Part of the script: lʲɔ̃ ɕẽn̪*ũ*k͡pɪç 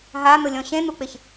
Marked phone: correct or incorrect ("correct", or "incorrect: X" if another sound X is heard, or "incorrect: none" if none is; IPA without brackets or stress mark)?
incorrect: u